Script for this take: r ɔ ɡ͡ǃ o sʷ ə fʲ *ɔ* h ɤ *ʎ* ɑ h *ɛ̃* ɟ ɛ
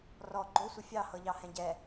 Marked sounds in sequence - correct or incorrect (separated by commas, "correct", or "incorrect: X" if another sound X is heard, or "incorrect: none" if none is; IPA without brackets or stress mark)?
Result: incorrect: ɑ, correct, correct